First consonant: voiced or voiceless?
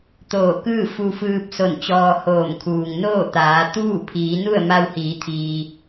voiceless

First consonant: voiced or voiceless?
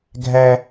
voiced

